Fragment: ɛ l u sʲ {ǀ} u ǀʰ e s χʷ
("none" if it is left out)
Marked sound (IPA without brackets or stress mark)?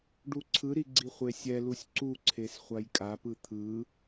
ǀ